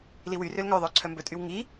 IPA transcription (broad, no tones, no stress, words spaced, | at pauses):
liwyrøl ŋœðˤœ ǀʰœmbɵtʼyw ŋi